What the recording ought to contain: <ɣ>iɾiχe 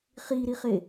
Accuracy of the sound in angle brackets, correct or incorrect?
incorrect